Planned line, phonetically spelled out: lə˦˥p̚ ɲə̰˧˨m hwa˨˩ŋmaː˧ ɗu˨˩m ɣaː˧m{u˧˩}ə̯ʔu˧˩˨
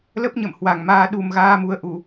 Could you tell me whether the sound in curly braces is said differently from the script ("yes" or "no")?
yes